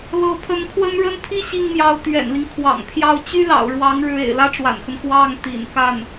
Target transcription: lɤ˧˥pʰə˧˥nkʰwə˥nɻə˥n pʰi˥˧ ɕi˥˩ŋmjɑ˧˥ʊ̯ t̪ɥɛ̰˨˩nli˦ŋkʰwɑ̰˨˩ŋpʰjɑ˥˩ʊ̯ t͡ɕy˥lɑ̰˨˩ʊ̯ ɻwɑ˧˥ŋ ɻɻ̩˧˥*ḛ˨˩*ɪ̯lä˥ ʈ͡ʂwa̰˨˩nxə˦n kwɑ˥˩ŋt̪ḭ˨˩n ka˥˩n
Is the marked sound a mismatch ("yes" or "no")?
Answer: no